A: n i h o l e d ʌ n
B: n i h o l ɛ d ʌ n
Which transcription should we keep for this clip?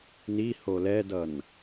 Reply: B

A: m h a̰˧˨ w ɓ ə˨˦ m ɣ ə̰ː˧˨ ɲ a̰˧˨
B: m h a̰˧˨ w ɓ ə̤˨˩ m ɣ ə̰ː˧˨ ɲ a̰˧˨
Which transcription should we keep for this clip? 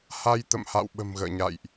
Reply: B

